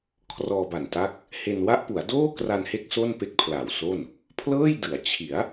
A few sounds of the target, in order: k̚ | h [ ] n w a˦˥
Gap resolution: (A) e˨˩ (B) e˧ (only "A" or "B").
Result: B